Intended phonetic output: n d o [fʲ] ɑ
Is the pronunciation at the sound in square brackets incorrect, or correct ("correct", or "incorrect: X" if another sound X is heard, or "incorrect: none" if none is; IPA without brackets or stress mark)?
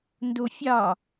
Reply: correct